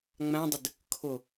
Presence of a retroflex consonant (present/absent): absent